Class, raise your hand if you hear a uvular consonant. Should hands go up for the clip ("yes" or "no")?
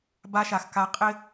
yes